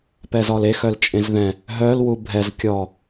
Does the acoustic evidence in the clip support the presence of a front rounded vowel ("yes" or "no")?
yes